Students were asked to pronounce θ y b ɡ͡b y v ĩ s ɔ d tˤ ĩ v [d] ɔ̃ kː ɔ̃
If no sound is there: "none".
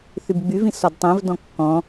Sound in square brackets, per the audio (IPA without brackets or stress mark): d